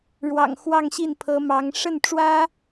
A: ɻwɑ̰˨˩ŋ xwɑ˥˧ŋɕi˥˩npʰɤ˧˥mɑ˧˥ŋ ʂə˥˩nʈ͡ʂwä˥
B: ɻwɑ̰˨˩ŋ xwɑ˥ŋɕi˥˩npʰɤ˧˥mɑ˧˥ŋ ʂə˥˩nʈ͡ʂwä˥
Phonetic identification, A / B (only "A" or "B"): A